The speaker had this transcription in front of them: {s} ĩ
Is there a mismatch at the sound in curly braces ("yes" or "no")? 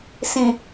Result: no